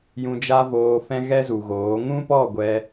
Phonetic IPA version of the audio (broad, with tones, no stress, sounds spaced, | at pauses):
j ũ˧ d͡ʒ a˦ v oː˧ f ɛ̃˦ ɣ ɛ˦ z u˨ ɣ oː˨˦ ŋ ũ˦ p ɔ˦˨ ɡʷ ɛ˧